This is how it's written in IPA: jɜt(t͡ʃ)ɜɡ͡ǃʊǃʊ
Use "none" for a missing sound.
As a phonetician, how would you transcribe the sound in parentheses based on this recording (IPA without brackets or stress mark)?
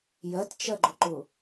t͡ʃ